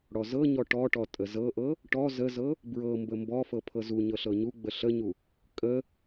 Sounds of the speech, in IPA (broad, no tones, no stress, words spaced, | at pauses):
ɽɔzɤɲɔ ʈɔʈɔ tʼəzɤʔɤ | ʈɔ zəzɤ | bɹɤmbə mbɔfɤ pʰɤzuɲɤ ɬɤɲuɡ͡bə ɬəɲu | kʼə